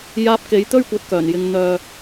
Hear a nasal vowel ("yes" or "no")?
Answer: no